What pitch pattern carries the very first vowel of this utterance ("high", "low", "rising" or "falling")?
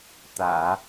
low